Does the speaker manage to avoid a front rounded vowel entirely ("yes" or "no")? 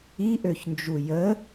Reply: no